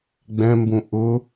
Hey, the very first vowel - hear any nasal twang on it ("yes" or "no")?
yes